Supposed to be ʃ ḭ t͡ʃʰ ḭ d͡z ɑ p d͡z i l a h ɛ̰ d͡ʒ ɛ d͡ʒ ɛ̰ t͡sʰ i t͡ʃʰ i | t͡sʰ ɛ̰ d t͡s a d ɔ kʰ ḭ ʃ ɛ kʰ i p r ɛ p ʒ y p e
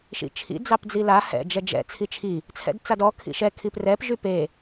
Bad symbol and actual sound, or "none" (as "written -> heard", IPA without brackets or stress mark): none